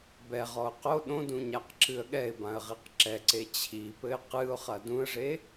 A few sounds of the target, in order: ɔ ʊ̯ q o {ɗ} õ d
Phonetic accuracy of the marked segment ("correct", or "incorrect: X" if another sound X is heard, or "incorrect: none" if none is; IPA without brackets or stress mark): correct